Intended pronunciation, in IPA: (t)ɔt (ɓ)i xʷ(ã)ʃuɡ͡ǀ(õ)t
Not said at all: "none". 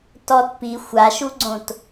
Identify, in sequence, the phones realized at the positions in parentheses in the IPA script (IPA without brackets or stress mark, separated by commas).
t, p, a, õ